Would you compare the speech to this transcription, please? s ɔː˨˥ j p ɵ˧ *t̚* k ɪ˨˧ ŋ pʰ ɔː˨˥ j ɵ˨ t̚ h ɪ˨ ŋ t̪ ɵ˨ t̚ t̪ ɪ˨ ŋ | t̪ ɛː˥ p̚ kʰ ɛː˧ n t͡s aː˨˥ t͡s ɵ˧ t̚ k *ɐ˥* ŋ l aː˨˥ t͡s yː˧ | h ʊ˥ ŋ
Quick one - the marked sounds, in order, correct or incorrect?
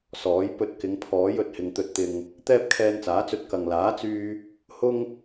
correct, incorrect

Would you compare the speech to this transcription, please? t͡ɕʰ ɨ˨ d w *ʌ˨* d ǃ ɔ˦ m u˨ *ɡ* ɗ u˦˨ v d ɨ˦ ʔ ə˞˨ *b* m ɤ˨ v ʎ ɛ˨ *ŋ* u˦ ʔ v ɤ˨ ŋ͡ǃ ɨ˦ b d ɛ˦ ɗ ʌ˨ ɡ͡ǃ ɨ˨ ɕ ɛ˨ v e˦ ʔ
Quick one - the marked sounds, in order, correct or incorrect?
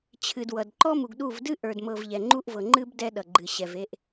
correct, correct, incorrect, incorrect

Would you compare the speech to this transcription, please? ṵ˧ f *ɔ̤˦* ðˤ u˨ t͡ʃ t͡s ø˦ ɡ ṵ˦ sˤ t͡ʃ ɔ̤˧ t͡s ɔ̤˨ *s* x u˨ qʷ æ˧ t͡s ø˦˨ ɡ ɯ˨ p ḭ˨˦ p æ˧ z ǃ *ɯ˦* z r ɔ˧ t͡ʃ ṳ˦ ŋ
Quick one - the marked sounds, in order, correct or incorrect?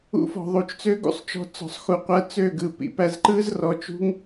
incorrect, incorrect, correct

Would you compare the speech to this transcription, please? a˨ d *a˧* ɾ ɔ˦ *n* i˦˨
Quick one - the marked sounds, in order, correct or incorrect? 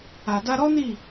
correct, correct

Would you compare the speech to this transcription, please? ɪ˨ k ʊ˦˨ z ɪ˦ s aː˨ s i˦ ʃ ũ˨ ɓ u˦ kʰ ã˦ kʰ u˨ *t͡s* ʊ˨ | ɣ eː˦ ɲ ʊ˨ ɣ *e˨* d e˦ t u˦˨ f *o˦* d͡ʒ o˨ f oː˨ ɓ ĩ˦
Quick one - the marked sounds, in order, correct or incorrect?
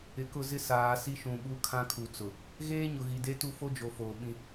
correct, incorrect, correct

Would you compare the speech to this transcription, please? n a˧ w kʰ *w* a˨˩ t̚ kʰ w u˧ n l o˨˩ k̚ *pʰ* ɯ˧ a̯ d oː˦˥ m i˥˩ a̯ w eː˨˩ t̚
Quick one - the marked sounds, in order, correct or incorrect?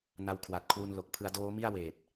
correct, correct

